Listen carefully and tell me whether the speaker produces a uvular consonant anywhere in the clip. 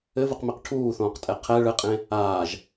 yes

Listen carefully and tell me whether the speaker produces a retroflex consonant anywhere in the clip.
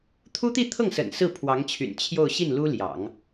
no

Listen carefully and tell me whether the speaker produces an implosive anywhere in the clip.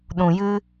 yes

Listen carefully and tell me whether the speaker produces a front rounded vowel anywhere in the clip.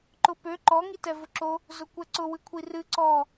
yes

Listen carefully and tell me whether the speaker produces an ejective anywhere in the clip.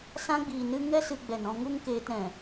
no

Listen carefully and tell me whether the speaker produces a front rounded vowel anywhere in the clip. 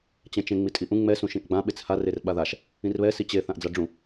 no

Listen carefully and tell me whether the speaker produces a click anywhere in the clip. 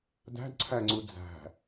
yes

